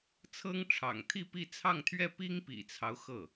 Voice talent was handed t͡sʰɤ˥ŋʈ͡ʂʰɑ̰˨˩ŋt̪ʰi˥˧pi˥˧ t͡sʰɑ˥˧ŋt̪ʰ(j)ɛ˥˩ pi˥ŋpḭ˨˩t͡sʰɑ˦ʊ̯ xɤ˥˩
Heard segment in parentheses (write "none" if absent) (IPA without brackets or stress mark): ɥ